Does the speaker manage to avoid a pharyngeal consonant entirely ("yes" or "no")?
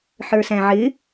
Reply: no